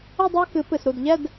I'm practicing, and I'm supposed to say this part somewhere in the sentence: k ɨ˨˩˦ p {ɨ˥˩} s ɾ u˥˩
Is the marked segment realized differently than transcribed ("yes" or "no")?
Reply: yes